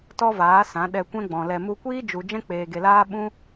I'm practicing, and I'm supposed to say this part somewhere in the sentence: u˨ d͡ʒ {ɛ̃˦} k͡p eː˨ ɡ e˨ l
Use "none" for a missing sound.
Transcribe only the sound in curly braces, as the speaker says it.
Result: ɛ̃˦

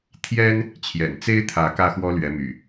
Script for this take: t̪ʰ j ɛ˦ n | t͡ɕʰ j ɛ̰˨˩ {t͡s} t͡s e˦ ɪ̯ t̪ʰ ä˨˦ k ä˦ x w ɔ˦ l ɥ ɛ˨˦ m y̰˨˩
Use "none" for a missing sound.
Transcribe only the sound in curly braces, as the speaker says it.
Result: n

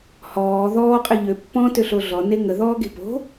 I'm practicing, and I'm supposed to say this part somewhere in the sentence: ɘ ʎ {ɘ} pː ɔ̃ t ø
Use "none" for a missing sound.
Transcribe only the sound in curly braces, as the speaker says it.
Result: ø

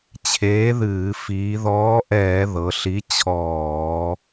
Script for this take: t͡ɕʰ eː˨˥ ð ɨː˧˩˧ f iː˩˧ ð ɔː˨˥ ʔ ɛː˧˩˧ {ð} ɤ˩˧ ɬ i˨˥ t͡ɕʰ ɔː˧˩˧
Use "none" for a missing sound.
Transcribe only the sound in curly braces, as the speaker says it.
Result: ð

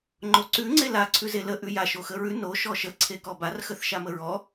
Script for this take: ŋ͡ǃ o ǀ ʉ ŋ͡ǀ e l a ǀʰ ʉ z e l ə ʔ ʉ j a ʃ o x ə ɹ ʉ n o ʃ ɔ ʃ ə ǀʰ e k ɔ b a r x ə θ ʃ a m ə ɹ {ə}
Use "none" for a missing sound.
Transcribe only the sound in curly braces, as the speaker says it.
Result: ɔ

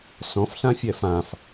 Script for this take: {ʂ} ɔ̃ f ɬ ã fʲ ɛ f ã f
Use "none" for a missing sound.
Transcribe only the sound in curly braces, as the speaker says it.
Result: s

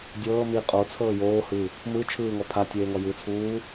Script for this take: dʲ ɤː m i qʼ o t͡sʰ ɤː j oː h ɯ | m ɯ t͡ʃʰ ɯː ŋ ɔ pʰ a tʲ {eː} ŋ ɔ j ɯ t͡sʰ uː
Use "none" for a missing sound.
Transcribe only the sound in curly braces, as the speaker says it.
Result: eː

